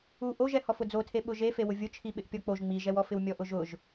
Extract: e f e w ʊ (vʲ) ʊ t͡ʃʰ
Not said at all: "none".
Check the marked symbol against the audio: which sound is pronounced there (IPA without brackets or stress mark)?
vʲ